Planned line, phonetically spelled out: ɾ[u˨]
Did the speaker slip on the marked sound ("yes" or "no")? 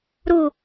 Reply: no